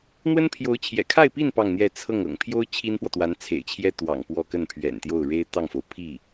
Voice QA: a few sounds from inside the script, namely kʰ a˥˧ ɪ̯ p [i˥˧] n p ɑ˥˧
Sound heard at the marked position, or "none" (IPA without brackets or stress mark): i˥˧